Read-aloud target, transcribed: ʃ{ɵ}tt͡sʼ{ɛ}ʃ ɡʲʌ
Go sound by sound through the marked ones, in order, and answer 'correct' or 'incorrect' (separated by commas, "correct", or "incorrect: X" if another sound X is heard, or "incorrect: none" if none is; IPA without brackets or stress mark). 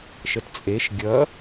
incorrect: ə, incorrect: e